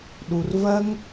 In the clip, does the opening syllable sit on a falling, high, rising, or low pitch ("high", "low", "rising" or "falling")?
low